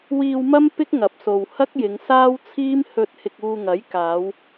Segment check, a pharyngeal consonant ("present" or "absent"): absent